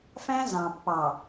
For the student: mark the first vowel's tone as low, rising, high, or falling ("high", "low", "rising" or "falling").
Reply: high